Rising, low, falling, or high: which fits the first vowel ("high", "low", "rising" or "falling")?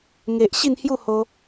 low